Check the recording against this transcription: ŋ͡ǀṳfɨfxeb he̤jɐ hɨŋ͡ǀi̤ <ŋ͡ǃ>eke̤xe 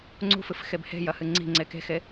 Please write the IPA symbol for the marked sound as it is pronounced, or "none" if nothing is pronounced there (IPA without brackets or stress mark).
ŋ͡ǀ